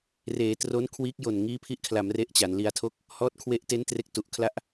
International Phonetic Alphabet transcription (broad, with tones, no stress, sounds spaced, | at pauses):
r eː˩˦ t r o˦˥ n kʰ w iː˦˥ k̚ j o˨˩ n ŋ iː˦˥ pʰ i˦˥ ʔ kʰ l a˩˦ m r e˥˩ ʔ t͡ɕ a˩˦ n l i˧ a̯ tʰ o˥˩ k̚ | h ɔː˦˥ t̚ kʰ w e˦˥ ʔ t e˦˥ n t r e˦˥ k̚ t u˨˩ ʔ kʰ l a˥˩ ʔ